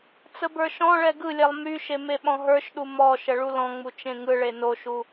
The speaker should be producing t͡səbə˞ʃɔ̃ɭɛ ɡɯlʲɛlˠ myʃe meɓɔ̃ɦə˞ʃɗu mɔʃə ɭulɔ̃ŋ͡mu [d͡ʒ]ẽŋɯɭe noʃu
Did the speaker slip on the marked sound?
yes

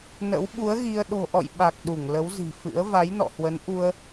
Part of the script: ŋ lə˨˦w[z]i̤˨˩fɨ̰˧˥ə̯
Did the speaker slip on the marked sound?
no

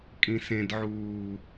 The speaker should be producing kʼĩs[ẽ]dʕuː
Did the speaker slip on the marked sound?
no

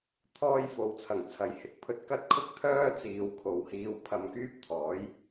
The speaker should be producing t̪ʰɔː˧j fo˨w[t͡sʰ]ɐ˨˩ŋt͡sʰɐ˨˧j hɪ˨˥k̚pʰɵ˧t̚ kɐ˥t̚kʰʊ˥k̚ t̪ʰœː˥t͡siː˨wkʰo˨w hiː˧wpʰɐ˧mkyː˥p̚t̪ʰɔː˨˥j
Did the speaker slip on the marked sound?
no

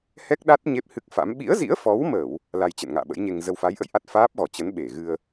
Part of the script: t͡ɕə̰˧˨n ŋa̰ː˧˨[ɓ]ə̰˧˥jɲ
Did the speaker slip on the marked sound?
no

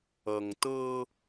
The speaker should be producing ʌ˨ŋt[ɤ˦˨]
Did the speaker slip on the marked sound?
yes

